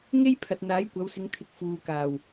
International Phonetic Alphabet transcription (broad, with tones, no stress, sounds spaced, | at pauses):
ŋ e˥ j pʰ ɐ˨ t̚ n̪ aː˨˥ j kʷ ɐ˨˧ w s ɪ˨˧ ŋ t̪ʰ ɪ˨˥ k̚ f uː˨ k aː˨˩ w